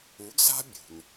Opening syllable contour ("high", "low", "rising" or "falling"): rising